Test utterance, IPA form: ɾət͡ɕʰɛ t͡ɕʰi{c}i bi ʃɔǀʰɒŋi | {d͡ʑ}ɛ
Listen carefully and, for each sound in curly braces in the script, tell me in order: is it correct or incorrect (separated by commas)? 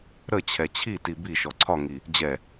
incorrect, correct